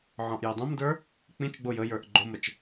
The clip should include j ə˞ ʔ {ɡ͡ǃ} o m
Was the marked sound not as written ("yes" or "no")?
no